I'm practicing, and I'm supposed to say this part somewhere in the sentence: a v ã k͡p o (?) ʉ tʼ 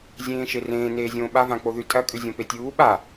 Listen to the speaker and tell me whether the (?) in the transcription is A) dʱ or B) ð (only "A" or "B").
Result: B